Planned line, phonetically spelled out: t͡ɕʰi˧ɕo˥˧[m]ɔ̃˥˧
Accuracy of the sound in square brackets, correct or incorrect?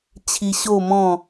correct